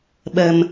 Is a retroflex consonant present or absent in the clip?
absent